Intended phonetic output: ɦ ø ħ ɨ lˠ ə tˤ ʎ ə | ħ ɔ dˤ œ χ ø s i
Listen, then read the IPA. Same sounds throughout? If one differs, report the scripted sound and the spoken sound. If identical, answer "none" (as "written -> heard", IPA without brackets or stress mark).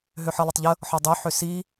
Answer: χ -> ħ